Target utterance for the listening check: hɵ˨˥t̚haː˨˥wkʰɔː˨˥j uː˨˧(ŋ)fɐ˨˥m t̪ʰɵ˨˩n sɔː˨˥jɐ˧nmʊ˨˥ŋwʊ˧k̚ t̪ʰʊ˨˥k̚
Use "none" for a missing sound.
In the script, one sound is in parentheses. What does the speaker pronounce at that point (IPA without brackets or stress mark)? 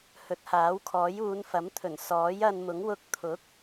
n